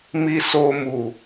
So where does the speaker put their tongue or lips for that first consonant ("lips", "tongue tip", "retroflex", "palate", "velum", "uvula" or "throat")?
lips